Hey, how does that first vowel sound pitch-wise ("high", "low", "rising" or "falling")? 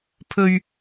low